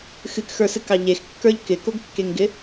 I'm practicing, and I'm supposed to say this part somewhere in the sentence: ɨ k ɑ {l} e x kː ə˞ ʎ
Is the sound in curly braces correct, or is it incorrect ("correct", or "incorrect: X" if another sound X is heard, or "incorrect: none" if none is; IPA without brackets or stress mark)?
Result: incorrect: ʎ